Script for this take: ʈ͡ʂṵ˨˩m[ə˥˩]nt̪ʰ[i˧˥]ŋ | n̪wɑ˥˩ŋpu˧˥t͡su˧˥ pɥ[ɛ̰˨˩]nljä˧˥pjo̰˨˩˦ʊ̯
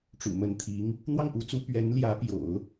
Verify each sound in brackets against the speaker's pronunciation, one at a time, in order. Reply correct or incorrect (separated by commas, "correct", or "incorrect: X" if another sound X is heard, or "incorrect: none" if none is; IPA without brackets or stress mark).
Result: incorrect: ə˧˥, correct, incorrect: ɛ˧˥